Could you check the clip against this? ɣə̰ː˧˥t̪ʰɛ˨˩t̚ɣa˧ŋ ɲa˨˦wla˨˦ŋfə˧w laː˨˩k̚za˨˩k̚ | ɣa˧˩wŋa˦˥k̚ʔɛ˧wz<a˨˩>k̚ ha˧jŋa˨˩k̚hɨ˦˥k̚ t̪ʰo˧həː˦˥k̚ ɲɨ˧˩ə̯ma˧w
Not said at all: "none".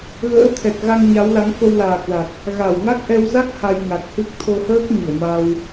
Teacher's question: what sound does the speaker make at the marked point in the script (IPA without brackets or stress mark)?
a˦˥